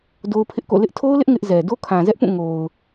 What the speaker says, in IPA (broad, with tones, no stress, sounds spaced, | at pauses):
d o˦ ʊ̯ pʰ ɪ˦ ʔ k o̰˦˨ l ɪ˦ ʔ tʰ o˦ ʊ̯ l ɪ˦ ʔ ŋ ɪ˦ ʔ z ɛ˨ d o˦ kʰ ã˨ z ɛ˦ ʔ p ũ˦˨ ŋ o˨ ʊ̯